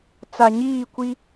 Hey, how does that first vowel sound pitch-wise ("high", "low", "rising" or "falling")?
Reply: low